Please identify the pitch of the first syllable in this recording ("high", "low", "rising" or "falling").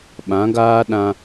rising